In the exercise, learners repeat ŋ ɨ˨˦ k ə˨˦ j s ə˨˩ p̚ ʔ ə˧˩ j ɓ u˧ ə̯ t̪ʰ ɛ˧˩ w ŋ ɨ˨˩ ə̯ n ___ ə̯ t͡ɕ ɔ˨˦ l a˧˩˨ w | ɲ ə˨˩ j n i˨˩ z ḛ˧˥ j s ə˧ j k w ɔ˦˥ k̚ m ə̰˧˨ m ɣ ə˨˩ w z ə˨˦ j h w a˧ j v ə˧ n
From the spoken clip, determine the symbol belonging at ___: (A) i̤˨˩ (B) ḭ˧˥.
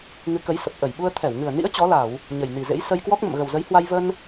B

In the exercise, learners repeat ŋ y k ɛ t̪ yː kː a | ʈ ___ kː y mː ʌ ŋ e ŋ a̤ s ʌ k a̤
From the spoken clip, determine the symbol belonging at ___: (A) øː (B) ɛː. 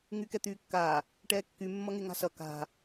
B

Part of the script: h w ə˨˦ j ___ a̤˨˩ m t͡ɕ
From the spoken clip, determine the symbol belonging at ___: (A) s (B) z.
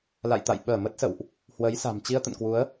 A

